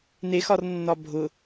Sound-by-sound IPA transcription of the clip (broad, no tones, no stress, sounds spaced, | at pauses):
n e x ɒ r nː ɒ bʱ ʊ